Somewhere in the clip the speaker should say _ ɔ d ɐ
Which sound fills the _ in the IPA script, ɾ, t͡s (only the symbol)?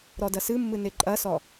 ɾ